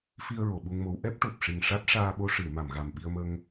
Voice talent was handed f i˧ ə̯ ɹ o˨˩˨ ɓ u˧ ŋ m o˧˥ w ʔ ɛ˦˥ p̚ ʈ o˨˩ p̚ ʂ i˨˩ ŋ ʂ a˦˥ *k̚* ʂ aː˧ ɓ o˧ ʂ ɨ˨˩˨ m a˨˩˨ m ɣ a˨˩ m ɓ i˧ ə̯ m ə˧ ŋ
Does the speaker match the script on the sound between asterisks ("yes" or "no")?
no